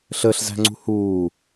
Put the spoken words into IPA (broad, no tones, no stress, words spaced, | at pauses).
ɬəɬzæ̤ŋ͡ǀṳ huː